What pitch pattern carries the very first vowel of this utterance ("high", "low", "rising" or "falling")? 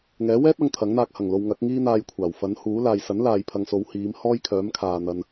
rising